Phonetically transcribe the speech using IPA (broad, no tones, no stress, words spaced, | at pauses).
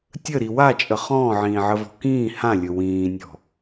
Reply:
tʲəɾi wat͡ʃʼə χɔ̃ːʕĩːʕəvɔ̤ kĩː hãlʲɵ wĩːnʲɔ̤